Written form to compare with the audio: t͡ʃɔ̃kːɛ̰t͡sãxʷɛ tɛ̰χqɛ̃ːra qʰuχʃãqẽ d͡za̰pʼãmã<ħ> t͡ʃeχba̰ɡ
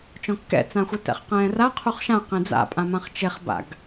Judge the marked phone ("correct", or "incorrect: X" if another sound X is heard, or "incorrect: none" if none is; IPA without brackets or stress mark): incorrect: χ